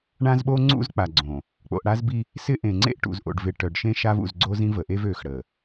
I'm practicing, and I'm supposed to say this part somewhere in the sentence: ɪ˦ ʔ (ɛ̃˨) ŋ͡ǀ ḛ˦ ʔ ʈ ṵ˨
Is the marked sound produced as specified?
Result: no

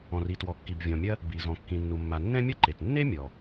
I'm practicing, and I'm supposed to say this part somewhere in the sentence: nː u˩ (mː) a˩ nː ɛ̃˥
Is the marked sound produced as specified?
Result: yes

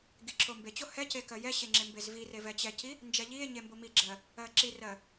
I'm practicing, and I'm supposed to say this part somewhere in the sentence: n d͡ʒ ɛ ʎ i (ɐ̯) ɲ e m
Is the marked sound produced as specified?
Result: no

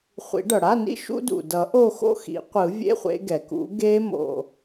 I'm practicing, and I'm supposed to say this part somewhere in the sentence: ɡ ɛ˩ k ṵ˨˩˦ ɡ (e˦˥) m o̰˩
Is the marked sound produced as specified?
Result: yes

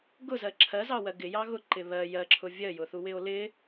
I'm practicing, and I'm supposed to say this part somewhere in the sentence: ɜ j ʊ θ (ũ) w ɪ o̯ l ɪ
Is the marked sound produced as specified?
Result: no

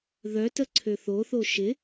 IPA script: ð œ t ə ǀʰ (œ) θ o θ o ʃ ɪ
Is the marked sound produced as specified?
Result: no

